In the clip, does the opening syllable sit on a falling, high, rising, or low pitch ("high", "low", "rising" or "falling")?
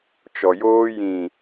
low